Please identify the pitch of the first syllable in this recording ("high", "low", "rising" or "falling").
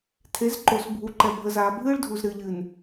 rising